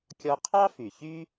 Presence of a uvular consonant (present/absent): present